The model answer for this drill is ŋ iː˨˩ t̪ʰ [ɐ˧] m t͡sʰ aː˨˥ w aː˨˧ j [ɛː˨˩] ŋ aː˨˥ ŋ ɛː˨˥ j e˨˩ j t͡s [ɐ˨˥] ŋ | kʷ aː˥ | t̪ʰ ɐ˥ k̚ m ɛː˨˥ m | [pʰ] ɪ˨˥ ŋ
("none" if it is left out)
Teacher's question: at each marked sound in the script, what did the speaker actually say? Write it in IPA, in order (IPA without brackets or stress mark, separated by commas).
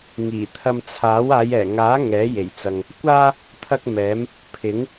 ɐ˧, ɛː˨˩, ɐ˨, pʰ